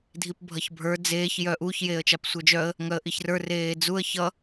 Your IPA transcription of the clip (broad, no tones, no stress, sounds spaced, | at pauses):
dʱ i p bʱ ʌ ç bʱ ə˞ d͡z eː ç j œ ʔ u ç j eː ə̯ t͡ʃ a p sʷ ə˞ d͡ʒ œ ə̯ | ŋ œ ə̯ ʔ i ç r ə˞ r eː d͡z u ə̯ ç ʌ